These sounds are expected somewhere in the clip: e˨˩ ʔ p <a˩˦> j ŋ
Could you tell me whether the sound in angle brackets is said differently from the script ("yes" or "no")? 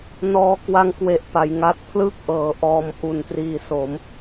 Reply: no